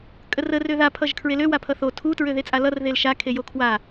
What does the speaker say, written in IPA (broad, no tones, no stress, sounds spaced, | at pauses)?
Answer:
kʼ ə r ə r ø ð a pʰ ʌ ʒ kʰ ɹ e l ø w a pʰ ʌ θ o tʰ u t ɹ ø ð e t͡sʼ a l ʌ r ð e l ʃ a kʰ e j o kʰ w a